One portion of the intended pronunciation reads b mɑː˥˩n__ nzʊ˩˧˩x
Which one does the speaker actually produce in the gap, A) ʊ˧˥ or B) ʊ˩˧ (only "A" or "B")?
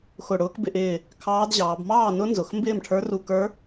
A